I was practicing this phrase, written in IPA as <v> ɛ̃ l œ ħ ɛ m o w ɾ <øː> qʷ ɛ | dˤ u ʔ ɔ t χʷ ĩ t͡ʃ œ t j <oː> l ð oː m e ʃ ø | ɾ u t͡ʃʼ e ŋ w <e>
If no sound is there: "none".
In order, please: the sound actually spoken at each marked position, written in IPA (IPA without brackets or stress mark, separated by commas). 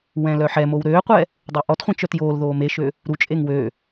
w, øː, oː, ø